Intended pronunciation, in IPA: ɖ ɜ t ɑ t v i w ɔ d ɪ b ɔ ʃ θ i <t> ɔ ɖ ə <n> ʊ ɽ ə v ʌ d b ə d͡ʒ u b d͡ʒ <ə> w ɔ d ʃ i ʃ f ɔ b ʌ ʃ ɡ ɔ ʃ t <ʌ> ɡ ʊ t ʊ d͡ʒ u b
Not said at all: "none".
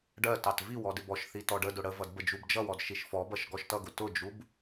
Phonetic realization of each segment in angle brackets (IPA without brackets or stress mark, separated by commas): t, d, ʌ, ʌ